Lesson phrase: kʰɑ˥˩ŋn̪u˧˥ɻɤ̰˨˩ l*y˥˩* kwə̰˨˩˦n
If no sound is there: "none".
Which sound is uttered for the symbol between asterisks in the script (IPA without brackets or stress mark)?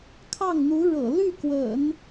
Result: y˥˩